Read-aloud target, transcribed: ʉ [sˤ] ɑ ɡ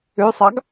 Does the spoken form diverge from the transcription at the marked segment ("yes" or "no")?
no